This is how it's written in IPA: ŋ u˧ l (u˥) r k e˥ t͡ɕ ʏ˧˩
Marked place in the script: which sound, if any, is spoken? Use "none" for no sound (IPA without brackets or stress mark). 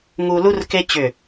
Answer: u˥